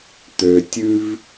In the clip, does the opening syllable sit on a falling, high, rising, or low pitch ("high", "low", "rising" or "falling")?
low